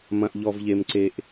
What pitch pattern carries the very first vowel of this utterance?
low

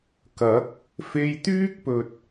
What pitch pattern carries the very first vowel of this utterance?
rising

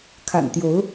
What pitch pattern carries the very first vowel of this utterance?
low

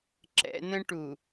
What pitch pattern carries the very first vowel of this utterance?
high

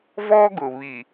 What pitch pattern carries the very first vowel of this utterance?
high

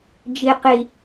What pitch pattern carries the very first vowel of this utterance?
low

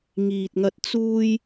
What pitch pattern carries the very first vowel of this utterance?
low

